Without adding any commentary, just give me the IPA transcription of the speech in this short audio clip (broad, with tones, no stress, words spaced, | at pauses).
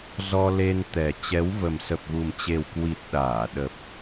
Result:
zɔ˧le˧nt̪ɛ˨˩ t͡ɕɛ˨˦wvə˨˩m sə˨˩p̚ɣu˨˩mt͡ɕe˨˩wkwi˨˩t̚ ɗaː˧˩ɗə˨˩p̚